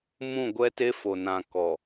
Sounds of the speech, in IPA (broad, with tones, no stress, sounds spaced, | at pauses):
m ũ˦˨ ɡʷ ɛ˦ t e˦ f o˨ n ã˨ k ɔ˨